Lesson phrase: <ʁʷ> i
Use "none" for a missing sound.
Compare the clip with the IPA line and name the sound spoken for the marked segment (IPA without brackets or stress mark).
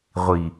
ʁʷ